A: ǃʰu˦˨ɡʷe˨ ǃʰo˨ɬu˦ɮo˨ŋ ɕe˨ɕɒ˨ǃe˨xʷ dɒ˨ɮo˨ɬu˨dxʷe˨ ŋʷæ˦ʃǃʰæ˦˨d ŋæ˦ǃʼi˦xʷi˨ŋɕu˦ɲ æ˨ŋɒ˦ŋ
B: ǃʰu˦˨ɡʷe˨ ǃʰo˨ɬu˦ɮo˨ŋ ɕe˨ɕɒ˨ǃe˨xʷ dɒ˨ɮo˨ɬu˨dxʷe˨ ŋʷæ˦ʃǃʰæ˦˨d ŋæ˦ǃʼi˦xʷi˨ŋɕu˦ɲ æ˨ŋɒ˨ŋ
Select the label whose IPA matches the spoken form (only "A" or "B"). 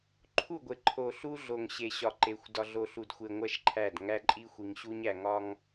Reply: A